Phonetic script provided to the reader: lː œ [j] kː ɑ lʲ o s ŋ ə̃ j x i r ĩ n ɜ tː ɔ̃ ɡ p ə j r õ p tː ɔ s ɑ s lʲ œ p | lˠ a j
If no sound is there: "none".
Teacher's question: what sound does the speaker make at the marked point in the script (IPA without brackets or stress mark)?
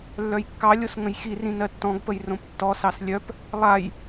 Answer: j